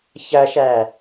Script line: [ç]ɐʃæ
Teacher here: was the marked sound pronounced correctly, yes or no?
yes